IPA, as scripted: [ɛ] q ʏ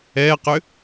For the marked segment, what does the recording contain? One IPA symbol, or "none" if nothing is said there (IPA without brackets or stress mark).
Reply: ɛ